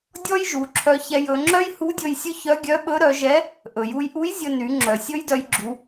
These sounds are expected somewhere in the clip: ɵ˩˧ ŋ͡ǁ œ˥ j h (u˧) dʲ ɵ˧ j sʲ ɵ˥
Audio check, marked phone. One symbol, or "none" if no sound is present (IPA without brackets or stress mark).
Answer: u˧˥